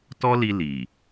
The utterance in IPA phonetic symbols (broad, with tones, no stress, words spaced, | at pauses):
tɔ˦li˧ li˨